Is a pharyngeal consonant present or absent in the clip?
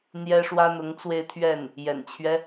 absent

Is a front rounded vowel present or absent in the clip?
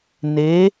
absent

